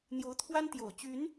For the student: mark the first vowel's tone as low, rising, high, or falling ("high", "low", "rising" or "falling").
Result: rising